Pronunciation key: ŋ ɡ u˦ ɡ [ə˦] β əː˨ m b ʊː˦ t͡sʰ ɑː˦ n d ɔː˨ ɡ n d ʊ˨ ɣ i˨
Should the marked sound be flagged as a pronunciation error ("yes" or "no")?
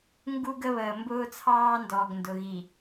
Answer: no